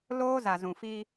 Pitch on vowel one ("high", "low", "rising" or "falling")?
high